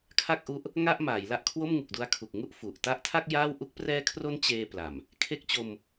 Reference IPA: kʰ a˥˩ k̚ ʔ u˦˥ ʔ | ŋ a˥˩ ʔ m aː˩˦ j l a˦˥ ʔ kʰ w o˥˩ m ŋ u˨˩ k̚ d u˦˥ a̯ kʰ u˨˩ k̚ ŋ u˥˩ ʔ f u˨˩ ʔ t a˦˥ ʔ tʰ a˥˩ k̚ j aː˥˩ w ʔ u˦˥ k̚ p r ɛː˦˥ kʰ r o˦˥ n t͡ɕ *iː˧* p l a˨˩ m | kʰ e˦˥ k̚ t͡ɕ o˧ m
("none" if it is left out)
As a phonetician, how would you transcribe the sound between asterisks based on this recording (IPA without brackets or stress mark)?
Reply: eː˧